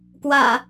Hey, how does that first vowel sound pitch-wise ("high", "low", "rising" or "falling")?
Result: low